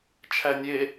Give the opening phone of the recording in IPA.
t͡ʃʰ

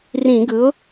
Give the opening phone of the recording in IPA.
r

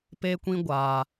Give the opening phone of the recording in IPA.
p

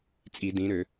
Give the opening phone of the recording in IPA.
t͡sʼ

